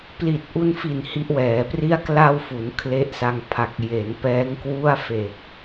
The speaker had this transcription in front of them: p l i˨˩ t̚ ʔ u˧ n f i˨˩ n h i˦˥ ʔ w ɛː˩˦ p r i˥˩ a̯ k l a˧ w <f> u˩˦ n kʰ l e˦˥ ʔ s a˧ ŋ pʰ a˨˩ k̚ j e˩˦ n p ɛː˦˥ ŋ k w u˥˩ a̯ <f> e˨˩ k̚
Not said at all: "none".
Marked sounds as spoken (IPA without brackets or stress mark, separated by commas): f, f